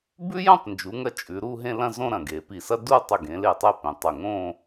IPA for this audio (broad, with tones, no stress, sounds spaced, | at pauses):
b ʉ˥ j õ˥˧ tˤ n d͡ʒ u˩˧ ŋ ɐ˧ t͡ʃʼ ʉ˩˧ ɾ u˥˧ ɦ ẽ˥˧ l ɐ̃˥˧ z õ˥˧ ɾ ɐ̃˧˩ ɡ e˩˧ p i˧˩ s ɐ˥ d u˥˧ tˤ ɵ˧˩ ɡ ẽ˩˧ l e˧˩ tˤ e˧ p ẽ˩˧ tˤ ɵ˧˩ ŋ õ˥˧